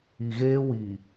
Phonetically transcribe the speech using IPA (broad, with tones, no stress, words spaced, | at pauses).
i˨ɣeː˦wi˨